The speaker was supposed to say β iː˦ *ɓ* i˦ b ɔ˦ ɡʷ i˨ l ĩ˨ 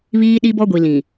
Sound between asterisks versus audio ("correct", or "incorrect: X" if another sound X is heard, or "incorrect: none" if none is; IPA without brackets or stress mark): incorrect: ɗ